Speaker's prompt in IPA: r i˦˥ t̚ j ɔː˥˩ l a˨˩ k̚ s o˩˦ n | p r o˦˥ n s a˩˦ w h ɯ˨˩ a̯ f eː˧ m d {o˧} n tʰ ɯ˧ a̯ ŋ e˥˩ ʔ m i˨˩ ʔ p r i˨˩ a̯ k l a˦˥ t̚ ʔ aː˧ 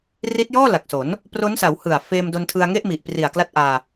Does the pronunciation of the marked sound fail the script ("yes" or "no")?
no